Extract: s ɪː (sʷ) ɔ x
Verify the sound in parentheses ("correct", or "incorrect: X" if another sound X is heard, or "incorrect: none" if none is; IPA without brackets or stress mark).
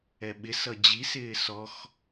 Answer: incorrect: s